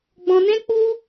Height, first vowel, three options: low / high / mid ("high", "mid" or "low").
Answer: mid